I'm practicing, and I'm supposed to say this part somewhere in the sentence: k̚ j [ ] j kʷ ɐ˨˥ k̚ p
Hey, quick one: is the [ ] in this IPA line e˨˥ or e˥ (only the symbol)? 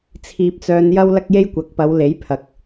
e˥